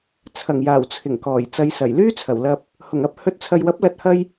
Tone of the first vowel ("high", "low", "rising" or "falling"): low